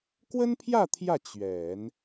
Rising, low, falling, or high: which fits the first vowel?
high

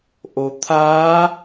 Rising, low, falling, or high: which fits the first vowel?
low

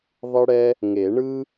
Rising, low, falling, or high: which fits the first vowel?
high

